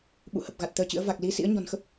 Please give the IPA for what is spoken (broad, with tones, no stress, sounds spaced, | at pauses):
ɓ ṵ˧˨ h ə˨˩ p̚ ɣ a˨˩ t̚ t̪ əː˧ t͡ɕ ɨ̰˧˥ ə̯ v a˨˩ k̚ l i˨˦ s ḭ˧˥ ə̯ ɲ ɔ̤˨˩ n x ə˦˥ p̚